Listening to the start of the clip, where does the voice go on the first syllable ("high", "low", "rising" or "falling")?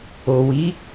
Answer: low